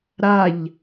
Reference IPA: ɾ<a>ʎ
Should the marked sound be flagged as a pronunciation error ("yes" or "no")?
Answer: no